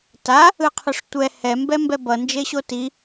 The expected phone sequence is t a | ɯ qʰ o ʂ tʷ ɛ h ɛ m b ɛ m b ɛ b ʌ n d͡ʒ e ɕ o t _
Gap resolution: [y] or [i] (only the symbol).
i